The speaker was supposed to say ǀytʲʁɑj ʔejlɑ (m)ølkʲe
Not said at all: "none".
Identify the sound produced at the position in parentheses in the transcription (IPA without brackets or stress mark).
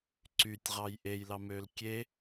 m